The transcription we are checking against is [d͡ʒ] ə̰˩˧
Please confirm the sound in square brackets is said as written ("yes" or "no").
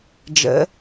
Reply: yes